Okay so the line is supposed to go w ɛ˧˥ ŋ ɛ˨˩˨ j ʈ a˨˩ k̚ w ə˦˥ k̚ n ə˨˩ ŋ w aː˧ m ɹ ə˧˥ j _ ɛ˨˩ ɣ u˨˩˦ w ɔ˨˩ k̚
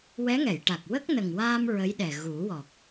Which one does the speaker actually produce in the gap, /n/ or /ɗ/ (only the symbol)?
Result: ɗ